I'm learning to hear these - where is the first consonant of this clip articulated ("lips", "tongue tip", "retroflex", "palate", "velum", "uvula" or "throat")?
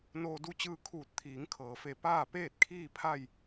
tongue tip